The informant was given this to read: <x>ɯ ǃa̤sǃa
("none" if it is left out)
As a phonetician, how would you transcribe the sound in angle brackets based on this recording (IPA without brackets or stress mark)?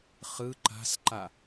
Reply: χ